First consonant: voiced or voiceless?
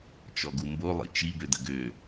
voiceless